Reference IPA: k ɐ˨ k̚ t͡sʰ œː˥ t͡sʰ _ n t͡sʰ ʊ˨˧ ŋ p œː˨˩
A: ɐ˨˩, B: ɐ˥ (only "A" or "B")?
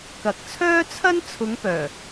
B